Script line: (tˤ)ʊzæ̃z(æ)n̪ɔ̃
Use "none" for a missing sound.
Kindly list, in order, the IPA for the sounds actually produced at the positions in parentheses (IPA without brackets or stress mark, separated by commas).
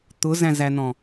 t̪, æ